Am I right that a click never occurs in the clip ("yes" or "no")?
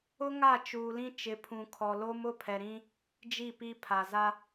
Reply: yes